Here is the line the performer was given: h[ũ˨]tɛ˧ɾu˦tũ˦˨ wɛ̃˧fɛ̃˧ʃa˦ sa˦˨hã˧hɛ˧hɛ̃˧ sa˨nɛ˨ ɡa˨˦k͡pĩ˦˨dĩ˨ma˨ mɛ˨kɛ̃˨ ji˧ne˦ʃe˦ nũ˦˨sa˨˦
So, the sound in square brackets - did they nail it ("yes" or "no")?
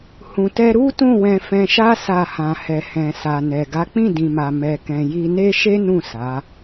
yes